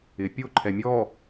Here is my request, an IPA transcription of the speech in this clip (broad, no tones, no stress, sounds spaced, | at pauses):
ɪ pʲ o ǃʰ ɛ mʲ ɔ